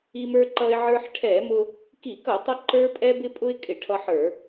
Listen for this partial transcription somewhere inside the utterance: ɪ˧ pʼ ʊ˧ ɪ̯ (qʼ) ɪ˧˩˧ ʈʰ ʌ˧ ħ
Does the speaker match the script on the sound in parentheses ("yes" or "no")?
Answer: no